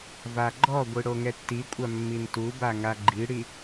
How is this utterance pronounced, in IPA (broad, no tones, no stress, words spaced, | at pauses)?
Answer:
vaɡ͡ǃɔɡʷi ɽoŋɛtːikʷʼa mːintuba ŋaɡ͡ǃiɽi